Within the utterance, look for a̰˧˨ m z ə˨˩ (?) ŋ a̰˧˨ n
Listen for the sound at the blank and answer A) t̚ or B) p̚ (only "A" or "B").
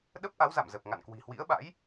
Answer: B